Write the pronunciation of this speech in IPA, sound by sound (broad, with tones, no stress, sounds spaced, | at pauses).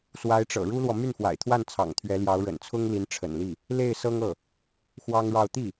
s w a˧˥ ɪ̯ ʈ͡ʂ ɤ̰˨˩ ɻ u˥ l w ɔ˨ m y˥˩ n f w a̰˨˩ ɪ̯ t̪ʰ w a˥˩ n t͡sʰ ɑ̰˨˩ ŋ t̪ʰ ɥ ɛ˧˥ l j ɑ˧˥ ʊ̯ ɻ ə̰˨˩ n t͡sʰ ʊ˥ ŋ l i˧˥ n ʈ͡ʂʰ ə̰˨˩ n l i˥˩ | l e˥˩ ɪ̯ s ɤ˥ ŋ ɤ˥˩ | x w ɑ˥ ŋ ɻ ɑ˥˧ ʊ̯ t̪ i˥˩